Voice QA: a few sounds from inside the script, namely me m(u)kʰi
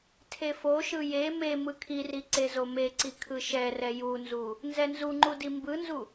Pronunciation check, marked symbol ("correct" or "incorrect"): incorrect